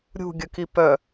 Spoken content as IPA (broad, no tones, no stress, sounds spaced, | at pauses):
ɾʲ ṳ ɡʲ ə k i p œ